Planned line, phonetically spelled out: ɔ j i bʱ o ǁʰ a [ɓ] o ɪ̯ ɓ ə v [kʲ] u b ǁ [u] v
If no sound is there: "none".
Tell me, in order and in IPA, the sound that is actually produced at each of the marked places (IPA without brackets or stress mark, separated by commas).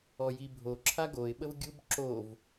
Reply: ɡ, ɡʲ, o